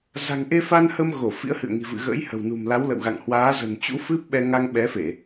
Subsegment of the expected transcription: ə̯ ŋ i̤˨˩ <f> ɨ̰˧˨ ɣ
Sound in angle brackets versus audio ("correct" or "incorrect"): incorrect